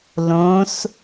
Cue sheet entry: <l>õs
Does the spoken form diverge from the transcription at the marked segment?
no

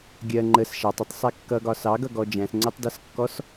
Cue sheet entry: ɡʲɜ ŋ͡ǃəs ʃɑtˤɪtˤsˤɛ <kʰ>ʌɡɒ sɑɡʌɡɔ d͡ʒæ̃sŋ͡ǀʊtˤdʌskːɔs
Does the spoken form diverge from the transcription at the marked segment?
yes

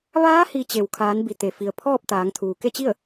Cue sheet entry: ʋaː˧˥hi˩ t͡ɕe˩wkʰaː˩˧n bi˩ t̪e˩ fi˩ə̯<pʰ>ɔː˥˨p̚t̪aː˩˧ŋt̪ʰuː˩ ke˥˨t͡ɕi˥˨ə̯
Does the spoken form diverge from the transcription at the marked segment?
no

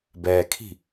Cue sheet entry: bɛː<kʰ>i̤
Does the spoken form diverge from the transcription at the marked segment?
no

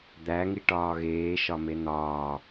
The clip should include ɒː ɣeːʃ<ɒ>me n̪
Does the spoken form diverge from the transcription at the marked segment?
no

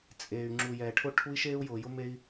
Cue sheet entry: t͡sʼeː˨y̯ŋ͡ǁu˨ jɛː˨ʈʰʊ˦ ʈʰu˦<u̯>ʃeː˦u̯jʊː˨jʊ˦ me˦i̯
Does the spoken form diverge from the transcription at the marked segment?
yes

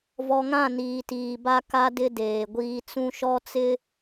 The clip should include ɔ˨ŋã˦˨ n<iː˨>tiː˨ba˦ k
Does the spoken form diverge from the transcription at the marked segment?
no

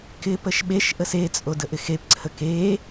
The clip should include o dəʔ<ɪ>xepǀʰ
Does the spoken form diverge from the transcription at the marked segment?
no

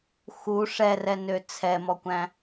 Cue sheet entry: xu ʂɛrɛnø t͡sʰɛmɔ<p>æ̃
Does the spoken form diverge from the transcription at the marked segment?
yes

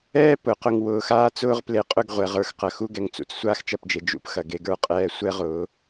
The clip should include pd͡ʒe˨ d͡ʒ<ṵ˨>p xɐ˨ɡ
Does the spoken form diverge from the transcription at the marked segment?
yes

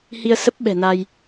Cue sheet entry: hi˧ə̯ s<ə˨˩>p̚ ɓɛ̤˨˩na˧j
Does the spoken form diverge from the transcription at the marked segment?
yes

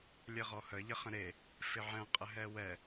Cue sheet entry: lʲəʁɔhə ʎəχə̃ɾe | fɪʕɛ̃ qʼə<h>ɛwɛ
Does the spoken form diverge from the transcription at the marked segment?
yes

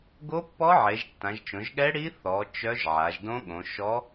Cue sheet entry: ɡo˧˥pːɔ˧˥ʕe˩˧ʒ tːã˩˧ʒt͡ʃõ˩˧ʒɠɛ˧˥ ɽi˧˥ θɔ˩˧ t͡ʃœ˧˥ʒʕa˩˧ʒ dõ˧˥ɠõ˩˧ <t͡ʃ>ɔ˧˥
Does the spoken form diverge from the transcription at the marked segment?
yes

